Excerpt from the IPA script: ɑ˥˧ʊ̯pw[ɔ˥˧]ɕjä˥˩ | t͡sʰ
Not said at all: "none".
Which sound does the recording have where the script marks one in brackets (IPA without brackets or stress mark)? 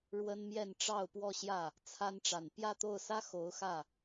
ɔ˥˧